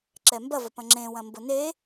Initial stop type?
click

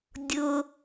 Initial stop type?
plain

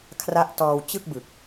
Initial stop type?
aspirated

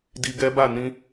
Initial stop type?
plain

